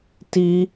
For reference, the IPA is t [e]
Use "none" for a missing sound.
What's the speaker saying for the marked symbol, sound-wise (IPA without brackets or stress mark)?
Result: i